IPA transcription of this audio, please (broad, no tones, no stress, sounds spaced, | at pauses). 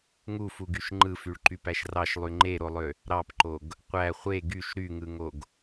ŋ u f u ɡ y ʃ ŋ͡ǃ ɯ f y ɭ ǃ y p æ ʃ r ɑ ʃ lˠ y ŋ͡ǃ e ɾ o lˠ ø | ɾ ɑ p ǃ o ɡ | qʷ æ χʷ e ɡ y ʃ ɾ y ŋ ɯ ŋ o ɡ